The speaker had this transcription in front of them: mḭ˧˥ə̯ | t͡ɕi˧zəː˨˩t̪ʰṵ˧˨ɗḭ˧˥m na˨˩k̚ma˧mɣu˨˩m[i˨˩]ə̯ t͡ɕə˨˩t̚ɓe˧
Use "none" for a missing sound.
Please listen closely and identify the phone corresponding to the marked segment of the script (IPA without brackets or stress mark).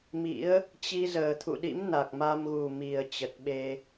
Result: i˨˩